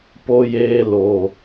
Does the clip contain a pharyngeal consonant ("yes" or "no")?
no